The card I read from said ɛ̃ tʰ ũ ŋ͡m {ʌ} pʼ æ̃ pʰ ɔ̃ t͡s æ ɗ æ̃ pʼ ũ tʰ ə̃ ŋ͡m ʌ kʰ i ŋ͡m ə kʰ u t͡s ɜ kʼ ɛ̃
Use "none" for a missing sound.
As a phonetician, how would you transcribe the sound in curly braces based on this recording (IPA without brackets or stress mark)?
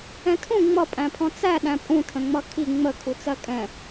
ʌ